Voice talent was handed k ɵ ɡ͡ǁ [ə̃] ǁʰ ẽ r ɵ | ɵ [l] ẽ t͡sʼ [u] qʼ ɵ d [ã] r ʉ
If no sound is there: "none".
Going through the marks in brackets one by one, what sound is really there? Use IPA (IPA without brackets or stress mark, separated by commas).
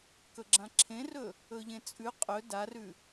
ã, ʎ, ʉ, a